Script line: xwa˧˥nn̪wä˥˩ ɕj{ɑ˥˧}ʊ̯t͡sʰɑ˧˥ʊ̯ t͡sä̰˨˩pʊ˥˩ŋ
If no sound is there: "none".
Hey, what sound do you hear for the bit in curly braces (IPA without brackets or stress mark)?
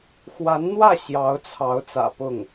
ɑ˧˥